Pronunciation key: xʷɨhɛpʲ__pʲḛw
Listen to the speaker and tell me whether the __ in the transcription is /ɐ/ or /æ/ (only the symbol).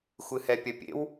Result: ɐ